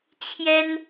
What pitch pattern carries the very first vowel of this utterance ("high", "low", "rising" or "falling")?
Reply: high